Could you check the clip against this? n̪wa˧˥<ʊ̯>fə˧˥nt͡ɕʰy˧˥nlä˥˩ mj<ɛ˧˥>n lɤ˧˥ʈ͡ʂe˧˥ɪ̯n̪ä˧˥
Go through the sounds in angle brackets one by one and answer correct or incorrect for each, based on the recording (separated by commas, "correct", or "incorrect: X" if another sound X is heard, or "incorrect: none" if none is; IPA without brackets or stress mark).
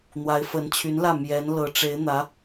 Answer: incorrect: ɪ̯, correct